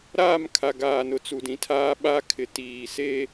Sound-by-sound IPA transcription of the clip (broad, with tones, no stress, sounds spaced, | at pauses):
ɾ aː˦˨ m kʰ a˨ ɡ aː˨ n ʊ˨ t͡s u˨ d ĩ˨ tʰ aː˦ ɓ a˦ kʰ ɪ˨ t iː˨ s e˦